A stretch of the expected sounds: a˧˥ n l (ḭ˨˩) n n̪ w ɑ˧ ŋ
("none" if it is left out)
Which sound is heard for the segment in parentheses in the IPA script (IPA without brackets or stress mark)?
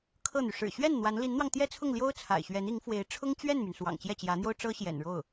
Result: i˧˥